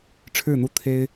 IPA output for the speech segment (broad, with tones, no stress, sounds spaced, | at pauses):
ʈ͡ʂʰ ɻ̩˥˩ n̪ u˥ t̪ʰ e˥ ɪ̯